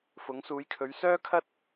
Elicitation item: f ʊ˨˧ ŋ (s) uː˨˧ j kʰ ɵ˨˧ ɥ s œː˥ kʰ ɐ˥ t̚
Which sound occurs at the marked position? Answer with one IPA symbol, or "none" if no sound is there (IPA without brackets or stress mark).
s